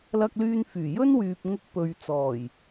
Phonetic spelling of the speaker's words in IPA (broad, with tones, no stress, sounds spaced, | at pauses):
l ɐ˧ k̚ l yː˧ n f yː˨˩ j ɵ˥ n w yː˨ p̚ ŋ ʊ˧ k̚ p ɵ˨ ɥ t͡s ɔː˨˩ j